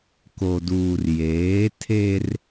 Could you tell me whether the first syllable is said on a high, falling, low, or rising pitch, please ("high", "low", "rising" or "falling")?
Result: low